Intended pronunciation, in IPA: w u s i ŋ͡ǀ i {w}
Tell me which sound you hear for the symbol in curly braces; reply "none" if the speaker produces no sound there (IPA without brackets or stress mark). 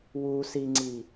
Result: none